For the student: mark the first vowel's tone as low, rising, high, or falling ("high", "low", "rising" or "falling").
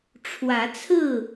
rising